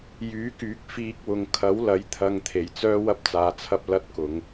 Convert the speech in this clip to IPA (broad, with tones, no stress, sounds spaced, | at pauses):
j yː˨˥ k yː˨˥ k̚ f iː˧ k̚ w ʊ˨ ŋ kʰ ɐ˨˥ w l ɐ˨˥ j t̪ʰ ɐ˧ ŋ t̪ʰ e˨˩ j t͡s œː˥ w ɐ˥ p̚ t͡s aː˨˧ t͡sʰ ɐ˥ p̚ l ɐ˥ t̚ k ʊ˨˧ ŋ